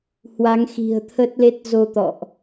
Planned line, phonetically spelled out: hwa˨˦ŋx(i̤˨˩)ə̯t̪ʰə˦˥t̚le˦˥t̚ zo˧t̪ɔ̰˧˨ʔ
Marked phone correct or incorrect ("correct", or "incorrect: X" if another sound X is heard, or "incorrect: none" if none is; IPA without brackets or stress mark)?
correct